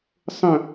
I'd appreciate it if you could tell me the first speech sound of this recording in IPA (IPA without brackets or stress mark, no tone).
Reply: sˤ